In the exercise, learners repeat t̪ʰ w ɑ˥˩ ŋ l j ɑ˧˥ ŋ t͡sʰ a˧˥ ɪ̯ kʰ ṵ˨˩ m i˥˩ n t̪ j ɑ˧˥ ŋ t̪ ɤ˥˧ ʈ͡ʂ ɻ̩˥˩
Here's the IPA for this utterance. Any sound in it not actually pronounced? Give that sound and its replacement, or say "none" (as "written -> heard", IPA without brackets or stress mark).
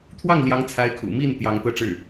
none